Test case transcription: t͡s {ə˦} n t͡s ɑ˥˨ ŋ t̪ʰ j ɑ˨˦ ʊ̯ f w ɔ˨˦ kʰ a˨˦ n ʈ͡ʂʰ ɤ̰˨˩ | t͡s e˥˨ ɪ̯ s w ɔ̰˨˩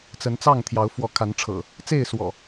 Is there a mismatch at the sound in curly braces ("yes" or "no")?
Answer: yes